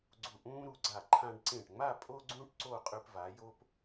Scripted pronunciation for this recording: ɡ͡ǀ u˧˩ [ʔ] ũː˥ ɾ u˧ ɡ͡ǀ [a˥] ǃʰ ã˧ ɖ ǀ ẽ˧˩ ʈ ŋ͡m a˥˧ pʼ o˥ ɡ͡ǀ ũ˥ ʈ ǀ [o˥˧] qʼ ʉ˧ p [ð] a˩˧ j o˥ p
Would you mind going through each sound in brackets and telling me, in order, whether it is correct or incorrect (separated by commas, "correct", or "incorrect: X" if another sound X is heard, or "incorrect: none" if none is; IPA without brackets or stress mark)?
correct, incorrect: a˧˩, correct, incorrect: v